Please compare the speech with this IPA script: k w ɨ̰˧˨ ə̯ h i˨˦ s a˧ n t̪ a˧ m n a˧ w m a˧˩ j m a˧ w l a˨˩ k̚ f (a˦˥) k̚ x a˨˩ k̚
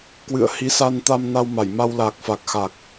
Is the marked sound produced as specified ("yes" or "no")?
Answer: no